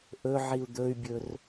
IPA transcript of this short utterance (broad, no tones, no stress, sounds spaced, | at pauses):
ʔ ɵ ʕ i u̯ d̪ ɵ y̯ bʲ ɵ r